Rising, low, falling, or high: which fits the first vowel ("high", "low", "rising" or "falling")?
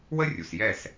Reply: high